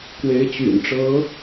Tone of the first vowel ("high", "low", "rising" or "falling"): rising